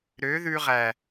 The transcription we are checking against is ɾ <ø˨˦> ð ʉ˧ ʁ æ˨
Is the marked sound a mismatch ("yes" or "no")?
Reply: no